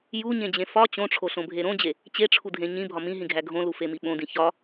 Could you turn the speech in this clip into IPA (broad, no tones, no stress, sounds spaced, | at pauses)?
j u ɲ ẽ d͡ʑ ẽ f ɒ t͡ɕ õ ʈ͡ʂʰ o ɬ õ bʱ e ɾ õ d͡ʑ e | t͡ɕ e ʈ͡ʂʰ u dʱ ẽ ɲ ĩ bʱ ɒ m ĩ ɦ ĩ ɡʱ æ ɡʱ õ l u f e m i ɓ õ d ĩ ç ɒ